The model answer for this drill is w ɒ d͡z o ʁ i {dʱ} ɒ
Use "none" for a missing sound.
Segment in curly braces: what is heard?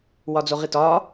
t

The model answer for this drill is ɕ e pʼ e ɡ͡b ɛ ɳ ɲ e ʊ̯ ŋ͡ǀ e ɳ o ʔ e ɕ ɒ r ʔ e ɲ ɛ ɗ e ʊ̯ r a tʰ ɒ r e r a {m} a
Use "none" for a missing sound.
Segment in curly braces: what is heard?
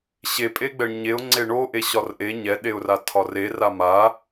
m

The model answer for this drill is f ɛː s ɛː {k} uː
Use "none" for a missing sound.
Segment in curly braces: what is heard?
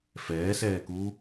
k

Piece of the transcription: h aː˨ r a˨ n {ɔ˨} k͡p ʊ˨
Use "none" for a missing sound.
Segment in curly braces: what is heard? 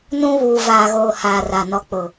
ɔ˨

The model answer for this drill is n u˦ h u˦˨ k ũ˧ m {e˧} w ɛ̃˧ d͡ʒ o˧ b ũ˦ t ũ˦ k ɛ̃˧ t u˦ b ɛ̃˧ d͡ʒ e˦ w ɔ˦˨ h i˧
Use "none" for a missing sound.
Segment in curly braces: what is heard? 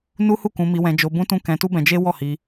i˧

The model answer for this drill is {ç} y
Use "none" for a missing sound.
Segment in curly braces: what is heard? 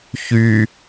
ç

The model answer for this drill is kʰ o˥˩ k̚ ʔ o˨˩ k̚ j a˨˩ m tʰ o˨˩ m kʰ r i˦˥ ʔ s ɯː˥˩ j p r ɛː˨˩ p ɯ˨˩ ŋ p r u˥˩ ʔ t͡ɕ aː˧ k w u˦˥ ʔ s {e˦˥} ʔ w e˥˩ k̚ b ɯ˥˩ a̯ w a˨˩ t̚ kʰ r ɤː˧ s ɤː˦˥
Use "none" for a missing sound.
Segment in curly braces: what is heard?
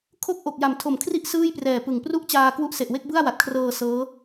e˨˩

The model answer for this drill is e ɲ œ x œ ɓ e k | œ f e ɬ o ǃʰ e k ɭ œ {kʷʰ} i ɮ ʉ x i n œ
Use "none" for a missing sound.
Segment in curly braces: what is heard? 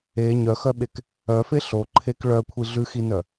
kʷʰ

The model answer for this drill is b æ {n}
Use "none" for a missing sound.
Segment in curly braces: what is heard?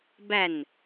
n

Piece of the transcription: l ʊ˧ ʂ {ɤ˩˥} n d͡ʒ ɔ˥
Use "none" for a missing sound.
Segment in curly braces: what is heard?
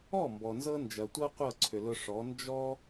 ɔ˩˥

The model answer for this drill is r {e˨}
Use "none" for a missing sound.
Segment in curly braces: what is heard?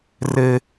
e˦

